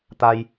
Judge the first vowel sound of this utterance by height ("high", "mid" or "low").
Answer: low